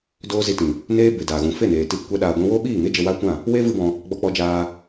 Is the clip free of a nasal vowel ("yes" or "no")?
no